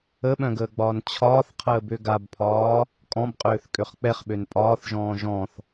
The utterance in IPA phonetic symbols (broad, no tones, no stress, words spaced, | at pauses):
əɓœ̃ɡəːɡ͡bɒːn t͡ɕʰɒːθqʰəːbø ɡabpʰɒː | kʼɔ̃bqʼøːθ kʼøχk͡pɛχɓøn pʼɒːθʒɔ̃ː ʒɔ̃θ